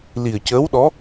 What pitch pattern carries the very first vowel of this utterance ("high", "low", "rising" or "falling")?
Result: low